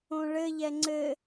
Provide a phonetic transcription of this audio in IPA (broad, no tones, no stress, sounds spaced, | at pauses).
õ ɭ ɘ ʎ ɛ ŋ͡ǀ ɘ